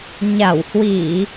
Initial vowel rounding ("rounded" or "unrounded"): unrounded